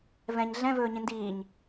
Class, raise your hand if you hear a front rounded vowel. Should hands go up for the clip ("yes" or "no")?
no